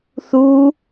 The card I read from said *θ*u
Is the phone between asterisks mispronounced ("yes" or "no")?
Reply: no